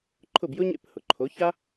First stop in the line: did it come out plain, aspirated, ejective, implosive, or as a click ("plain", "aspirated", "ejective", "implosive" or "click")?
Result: click